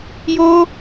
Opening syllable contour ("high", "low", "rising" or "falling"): high